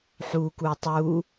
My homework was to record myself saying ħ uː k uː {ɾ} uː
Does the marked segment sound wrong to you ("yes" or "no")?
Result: yes